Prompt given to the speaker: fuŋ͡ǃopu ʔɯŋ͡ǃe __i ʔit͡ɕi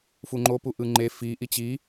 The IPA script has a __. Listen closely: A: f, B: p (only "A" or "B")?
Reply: A